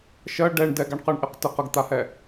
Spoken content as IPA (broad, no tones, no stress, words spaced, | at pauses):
ʃɜ ɖɛɳ dɛɡaɳqɜɳʔɪq tɪq əɡt̪ahɛ